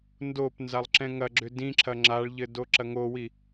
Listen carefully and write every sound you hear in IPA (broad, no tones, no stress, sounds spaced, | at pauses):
n d o p n z a lˠ ǁ ɛ̃ ŋ ɐ ɡ͡ǁ ʏ d ĩ ǁʰ ɐ ŋ͡ǁ a ɭ ʎ ɘ d o ǁ ɐ ŋ o w i